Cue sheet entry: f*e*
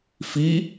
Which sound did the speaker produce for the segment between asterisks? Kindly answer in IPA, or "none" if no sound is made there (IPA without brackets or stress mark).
i